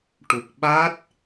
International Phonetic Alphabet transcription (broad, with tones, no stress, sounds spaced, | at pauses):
ʈ u˨˩ k̚ ɓ a˦˥ t̚